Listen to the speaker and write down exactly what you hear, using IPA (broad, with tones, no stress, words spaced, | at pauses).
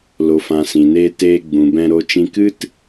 lo˨fã˨ sĩ˨neː˧teː˧ ɡ͡bũ˨bɛ̃˧ ɾo˦t͡ʃĩ˦ kɨ˦t